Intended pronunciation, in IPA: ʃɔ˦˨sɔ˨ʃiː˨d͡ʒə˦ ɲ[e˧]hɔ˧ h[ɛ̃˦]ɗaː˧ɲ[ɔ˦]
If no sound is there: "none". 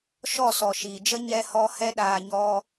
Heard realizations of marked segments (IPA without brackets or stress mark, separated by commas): ɛ˧, ɛ˦, ɔ˦